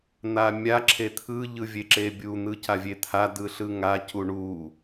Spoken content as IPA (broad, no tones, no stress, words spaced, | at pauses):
n̪amʲa ǁʰet̪ʰɯ ʎɯvʲeǁebʲu n̪ɯcavʲet̪ʰa dɯɬɯŋa cuɳu